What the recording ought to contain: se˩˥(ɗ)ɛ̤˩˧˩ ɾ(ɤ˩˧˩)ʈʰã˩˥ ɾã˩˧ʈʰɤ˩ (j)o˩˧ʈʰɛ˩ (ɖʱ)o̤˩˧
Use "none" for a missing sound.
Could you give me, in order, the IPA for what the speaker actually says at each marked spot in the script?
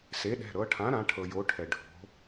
ɗ, ɤ˩˧, j, ɖʱ

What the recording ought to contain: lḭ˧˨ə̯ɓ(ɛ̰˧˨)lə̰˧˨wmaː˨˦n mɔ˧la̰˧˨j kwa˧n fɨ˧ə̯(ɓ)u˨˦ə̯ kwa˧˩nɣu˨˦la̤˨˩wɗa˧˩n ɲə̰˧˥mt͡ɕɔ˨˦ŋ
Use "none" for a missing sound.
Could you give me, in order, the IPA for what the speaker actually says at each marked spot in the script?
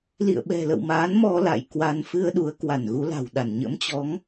ɛ̤˨˩, ɗ

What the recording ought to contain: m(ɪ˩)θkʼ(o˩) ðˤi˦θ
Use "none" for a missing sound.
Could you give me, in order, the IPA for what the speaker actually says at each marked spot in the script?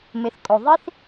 ɪ˩, o˩

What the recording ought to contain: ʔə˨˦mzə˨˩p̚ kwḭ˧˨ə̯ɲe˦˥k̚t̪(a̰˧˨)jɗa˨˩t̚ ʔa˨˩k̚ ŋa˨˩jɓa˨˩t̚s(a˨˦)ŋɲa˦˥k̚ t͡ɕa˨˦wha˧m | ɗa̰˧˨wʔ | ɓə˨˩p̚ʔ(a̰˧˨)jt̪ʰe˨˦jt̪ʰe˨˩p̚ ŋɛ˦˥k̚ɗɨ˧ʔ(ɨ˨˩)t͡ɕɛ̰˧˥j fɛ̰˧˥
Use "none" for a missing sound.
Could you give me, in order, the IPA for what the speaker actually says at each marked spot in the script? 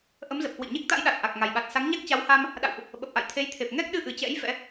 a̰˧˥, a˨˦, a̰˧˨, ɨ˨˩

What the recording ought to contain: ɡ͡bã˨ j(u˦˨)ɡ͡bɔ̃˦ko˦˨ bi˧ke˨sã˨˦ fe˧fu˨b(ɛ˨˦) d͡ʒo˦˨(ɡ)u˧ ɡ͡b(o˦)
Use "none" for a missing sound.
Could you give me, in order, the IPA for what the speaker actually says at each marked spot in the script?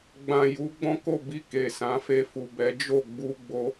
u˨˦, ɛ˨˦, ɡ͡b, o˧

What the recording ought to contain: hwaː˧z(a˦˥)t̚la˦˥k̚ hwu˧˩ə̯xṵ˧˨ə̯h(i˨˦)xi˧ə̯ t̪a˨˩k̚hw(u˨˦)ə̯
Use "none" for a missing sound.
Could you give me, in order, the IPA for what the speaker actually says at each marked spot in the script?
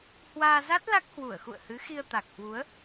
a˦˥, ɨ˨˦, u˨˦

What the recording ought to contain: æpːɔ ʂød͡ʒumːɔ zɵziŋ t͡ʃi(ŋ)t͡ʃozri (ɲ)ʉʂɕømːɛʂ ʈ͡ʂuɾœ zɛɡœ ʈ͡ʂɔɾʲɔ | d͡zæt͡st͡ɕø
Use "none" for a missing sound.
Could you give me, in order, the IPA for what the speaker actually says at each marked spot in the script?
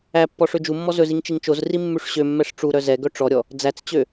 ŋ, mː

